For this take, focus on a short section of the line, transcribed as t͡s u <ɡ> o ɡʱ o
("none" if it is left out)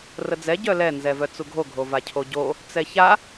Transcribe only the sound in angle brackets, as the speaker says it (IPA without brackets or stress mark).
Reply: ɡʱ